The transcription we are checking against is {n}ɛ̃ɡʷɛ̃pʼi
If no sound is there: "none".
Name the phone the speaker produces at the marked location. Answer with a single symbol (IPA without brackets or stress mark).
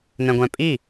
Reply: n